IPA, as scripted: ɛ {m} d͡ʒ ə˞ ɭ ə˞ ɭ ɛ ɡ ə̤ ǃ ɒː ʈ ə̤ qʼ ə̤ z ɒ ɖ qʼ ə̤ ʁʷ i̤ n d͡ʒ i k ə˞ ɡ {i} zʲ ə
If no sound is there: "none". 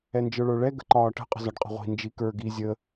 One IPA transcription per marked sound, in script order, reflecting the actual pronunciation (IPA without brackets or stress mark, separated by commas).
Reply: n, i